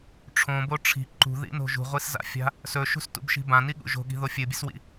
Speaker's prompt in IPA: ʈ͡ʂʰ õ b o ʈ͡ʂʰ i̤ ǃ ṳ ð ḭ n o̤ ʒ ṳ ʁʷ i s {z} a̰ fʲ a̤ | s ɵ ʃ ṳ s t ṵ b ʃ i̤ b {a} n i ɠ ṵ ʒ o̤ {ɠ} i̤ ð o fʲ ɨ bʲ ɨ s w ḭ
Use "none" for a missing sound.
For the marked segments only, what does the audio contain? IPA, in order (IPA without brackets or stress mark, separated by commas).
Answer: z, ã, ɠ